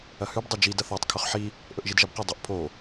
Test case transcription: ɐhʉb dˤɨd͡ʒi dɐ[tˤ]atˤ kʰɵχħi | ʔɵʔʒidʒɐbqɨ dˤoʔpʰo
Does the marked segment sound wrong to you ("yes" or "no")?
yes